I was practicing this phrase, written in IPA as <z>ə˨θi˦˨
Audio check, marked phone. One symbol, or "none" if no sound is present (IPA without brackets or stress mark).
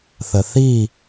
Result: θ